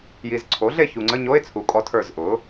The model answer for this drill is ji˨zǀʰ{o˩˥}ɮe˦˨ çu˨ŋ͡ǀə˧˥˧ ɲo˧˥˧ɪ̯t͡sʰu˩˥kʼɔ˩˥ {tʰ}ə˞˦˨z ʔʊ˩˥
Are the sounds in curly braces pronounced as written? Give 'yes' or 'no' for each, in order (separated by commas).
yes, yes